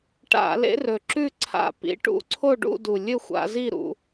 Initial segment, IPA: ʈ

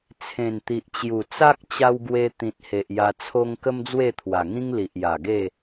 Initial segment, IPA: t͡sʰ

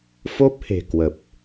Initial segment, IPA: f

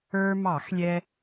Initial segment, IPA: ə˞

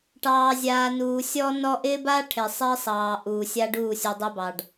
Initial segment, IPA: ʈ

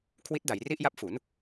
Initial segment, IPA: kʰ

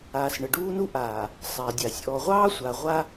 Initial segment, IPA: aː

